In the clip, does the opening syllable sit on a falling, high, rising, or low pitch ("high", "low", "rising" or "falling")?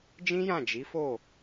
high